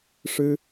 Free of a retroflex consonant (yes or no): no